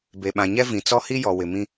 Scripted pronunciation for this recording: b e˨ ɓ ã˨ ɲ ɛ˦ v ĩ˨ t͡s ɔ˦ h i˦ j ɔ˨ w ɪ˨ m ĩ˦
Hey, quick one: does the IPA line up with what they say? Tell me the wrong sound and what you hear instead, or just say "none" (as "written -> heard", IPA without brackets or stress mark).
none